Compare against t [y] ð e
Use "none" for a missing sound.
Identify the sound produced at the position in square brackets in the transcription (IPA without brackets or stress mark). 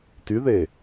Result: y